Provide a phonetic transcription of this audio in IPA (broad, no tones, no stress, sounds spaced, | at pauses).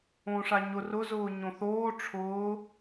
õ ʂ a ɲ ʊ r ʊ z ʊː ɲ õ θ oː ʈ͡ʂʰ ʊː